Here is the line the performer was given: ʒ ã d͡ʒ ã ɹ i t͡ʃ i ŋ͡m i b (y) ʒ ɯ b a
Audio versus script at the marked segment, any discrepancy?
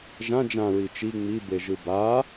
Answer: yes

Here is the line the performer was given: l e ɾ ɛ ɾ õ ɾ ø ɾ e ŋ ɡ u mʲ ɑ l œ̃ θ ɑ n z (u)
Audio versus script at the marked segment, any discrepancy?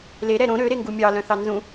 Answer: yes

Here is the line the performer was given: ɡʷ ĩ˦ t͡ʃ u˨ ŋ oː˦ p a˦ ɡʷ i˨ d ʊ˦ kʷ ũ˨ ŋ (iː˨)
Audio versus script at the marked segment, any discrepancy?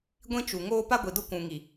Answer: yes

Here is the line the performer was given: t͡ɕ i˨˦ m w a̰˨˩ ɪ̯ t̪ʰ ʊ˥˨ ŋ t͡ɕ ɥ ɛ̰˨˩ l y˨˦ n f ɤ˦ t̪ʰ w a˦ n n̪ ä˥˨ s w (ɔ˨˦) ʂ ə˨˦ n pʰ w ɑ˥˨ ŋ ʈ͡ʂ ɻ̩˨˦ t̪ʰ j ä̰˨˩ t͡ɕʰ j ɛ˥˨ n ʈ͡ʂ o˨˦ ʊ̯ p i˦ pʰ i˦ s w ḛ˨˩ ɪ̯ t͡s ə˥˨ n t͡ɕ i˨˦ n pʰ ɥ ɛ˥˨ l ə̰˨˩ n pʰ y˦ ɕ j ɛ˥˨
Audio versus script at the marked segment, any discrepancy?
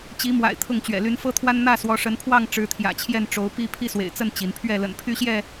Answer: no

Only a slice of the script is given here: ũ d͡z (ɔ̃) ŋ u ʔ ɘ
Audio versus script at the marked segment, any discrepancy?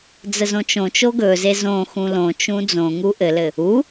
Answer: yes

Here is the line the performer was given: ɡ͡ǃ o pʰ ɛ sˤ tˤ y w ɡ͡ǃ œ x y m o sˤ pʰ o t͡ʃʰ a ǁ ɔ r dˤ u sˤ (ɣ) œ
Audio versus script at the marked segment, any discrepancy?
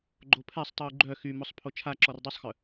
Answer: yes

